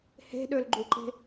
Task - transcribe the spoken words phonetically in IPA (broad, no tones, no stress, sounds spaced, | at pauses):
h e̤ ɗ ø l ɡ͡ǃ u ǃ e̤